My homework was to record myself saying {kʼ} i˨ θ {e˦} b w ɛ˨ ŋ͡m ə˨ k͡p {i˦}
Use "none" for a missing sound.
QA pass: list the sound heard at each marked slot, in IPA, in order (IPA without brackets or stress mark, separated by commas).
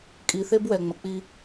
kʼ, e˦, i˦